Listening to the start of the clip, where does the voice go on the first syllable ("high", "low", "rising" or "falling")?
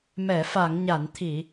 low